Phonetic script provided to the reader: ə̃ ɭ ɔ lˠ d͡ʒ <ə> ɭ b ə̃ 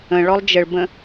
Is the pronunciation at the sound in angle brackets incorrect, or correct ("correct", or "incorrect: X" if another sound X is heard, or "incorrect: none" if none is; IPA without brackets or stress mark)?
correct